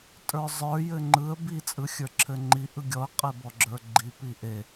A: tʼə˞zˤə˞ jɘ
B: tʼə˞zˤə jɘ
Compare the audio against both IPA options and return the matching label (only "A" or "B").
A